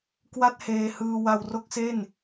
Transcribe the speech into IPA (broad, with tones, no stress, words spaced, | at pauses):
kwa˥˩t̚heː˧ hɯː˧ wa˧wro˥˩k̚se˥˩n